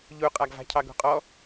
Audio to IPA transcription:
ʎ u qʼ a ɡ v a̤ cʰ ɑ ɡ ṳ qʼ ɔ

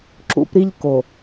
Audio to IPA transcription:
ǁ ṵ˦ p ɾ i˦ ʎ k o˨

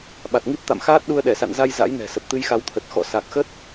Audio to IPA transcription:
ɓ a˨˩ t̚ ŋ i˦˥ p̚ t̪ a̰˧˨ m x aː˦˥ t̚ ɗ u˧ ə̯ ɗ ɛ˧˩ s a̰˧˨ n z a˧ j z a̰˧˥ j n ɛ̤˨˩ s ə˨˩ p̚ t̪ ɨ˧ j x a˨˦ w t̪ʰ ə˨˩ t̚ x ɔ̰˧˨ s a˨˩ k̚ x ə˦˥ t̚

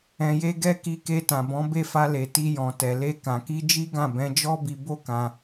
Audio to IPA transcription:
ɛ̃˧ j e˦ ɡ ɛ˦ k i˧ k e˧ t ã˨ b ɔ̃˨˦ b e˦˨ f a˧ l e˨ t i˧ j ɔ̃˨ t ɛ˨ l e˧ k ã˨ k i˧ d͡ʒ i˦ ɡ ã˦˨ b ɛ̃˨˦ d͡ʒ ɔ˦ b i˧ b o˦ k ã˧

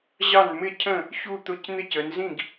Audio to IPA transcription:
ʑ ɑ˥˩ n m ɪ˥˩ cʰ ə̃˥˩ | ç u˥˩ t̪ ʊ˥˩ c n̪ ɪ˥˩ c ə˩˧ n z ĩ˥˩ ɡ

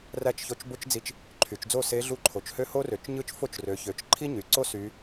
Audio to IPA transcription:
r æ˥˨ t͡ʃ ç o˧˥ t͡ʃ b o˥ t͡ʃ d͡z i˧˥ t͡ʃ | ǃʰ y˩˧ t͡ʃ d͡z o˥˨ s e˧˥ ɮ u˧˥ ǃʰ o˩˧ t͡ʃ h ø˥˨ h o˥ r ø˩˧ t͡ʃ ɲ ɯ˥˨ t͡ʃ f o˥˨ t͡ʃ r ø˩˧ ç ø˩˧ t͡ʃ ǃʰ i˥ ɲ y˩˧ ǀ o˥ s y˧˥

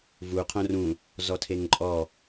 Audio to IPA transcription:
v u qʰ õ r ũ | z ɔ tʰ e ŋ ǃʼ ɔ

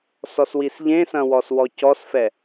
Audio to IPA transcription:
s ɔ s w i s ʎ ẽ s ɐ̃ w ɔ s w ɔ c ɔ s f ɛ

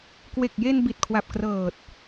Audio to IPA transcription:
k w e˨˩ k̚ j e˧ n b i˨˩ t̚ kʰ w a˨˩ p̚ k r ɤː˨˩ t̚

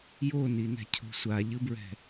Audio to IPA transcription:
j o n i n ɛ̤ cʰ o̤ sʷ a ʎ ɯ b ɹ ɛ̤

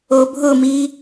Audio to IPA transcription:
o bʱ ʊ m i

